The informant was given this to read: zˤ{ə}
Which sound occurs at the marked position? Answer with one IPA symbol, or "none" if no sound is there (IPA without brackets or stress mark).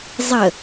ə